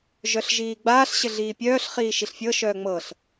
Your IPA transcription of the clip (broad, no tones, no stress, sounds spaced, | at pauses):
ʒ œ ɬ ʒ iː ɡ͡b aː ɬ ɕ ɘ ɮ iː pʲ œː ɬ χ iː ʃ i ɬ fʲ ɤ ʃ œː ŋ͡m ɤ ɬ